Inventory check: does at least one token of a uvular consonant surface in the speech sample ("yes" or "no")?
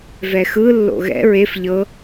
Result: no